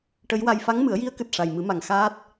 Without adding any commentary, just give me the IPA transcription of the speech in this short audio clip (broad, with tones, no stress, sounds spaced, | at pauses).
ʈ ə˧˥ j w a˧ j f a˧˥ ŋ m ɨ˨˩˦ ə̯ j i˧˥ ə̯ k ɨ˨˩ t̚ ʂ a˨˩ j m ɨ˨˩˦ m a˨˩ ŋ x aː˦˥ t̚